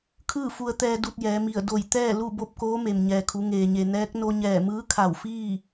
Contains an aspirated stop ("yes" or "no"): yes